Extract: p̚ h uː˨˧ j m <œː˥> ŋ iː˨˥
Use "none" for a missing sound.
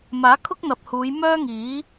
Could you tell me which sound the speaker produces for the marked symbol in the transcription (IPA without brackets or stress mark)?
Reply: œː˥